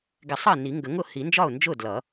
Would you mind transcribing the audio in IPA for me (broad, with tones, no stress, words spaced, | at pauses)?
ɡɪ˨˩˦sˤʌ˥˩ɪ̯ ni˨˩˦ŋɡə˨˩˦ŋʊ˥˩ hi˨˩˦nd͡ʒɒ˥˩ʊ̯nd͡ʒʊ˥˩ dlʌ˨˩˦